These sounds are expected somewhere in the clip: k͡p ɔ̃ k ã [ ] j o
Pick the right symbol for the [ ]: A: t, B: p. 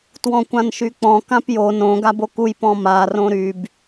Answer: B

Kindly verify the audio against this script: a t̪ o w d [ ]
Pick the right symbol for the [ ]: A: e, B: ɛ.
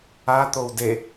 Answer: A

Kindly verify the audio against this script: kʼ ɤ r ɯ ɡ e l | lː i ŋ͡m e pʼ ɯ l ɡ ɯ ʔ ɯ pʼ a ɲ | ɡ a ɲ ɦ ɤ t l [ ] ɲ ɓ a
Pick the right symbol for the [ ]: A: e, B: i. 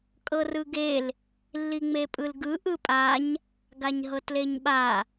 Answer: A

